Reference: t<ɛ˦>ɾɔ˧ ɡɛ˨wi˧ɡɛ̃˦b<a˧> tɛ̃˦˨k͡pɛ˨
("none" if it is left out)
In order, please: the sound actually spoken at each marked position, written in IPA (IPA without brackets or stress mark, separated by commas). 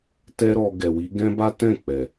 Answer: ɛ˦, a˦